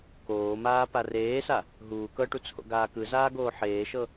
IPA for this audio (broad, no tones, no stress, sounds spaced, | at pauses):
k oː m aː p a r eː s a | ɦ uː k ɤ ʈ u t͡sʰ o̰ ɡ aː k ɯ z aː ɡ oː ħ eː ʃ ɤ